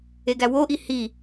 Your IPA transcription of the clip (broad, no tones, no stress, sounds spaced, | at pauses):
e ɡ æ w o ʔ i h i